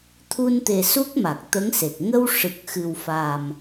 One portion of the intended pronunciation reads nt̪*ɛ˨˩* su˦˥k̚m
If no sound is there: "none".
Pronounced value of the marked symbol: e˨˩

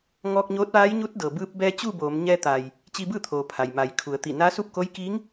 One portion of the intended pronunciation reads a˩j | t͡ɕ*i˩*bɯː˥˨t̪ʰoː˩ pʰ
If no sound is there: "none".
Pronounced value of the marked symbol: i˧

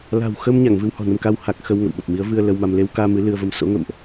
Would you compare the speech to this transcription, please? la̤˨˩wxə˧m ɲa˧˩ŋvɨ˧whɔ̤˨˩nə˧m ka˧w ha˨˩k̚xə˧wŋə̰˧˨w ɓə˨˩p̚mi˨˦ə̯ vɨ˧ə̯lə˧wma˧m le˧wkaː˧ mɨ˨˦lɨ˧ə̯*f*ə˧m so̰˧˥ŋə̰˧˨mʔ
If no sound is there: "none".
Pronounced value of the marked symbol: v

